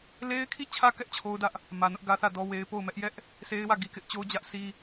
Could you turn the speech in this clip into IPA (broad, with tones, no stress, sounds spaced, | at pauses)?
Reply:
l e˦ ɪ̯ kʰ i˦˨ t͡ɕʰ ä˦ k ɛ˦ ʔ t͡ɕʰ o˦ ʊ̯ d ä˦ ʔ | m ä˨ n ʊ˦ ʔ ɡ ä˦ θ ä˦˨ d ɔ˦ w e˦ ɪ̯ p o˦˨ ʊ̯ m ɛ˦ ʔ j ɛ˦ ʔ | s e˦ ɪ̯ w ä˦˨ ɡ i˨ k ɪ˦ ʔ t͡ɕ o˦ ʊ̯ d͡ʑ ä˦ ʔ s i˦